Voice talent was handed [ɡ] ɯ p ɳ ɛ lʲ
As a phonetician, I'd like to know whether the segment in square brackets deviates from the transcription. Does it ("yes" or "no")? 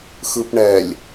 yes